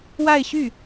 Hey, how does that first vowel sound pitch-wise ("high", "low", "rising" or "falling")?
falling